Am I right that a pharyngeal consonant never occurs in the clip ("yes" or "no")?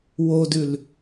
yes